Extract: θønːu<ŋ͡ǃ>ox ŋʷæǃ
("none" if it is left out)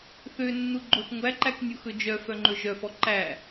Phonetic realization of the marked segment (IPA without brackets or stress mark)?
ɡ͡ǃ